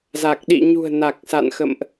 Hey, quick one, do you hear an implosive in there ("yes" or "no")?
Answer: yes